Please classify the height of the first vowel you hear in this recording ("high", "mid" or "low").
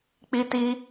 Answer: high